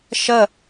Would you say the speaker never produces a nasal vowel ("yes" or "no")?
yes